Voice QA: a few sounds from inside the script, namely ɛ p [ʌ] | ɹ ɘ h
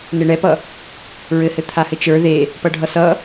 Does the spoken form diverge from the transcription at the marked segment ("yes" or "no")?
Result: no